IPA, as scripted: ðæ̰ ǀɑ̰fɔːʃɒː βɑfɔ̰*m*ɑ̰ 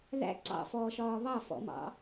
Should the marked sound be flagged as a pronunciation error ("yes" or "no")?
no